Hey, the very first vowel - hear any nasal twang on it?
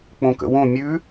yes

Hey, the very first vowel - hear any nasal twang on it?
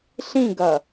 yes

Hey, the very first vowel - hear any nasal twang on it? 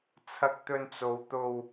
no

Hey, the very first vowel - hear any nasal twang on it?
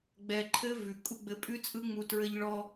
no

